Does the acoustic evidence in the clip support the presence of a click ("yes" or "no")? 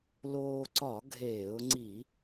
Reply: yes